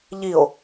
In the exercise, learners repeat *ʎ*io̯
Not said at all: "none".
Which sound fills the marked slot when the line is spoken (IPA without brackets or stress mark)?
ʎ